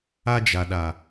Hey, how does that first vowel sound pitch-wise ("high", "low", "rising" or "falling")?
high